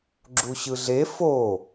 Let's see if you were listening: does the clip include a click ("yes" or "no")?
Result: yes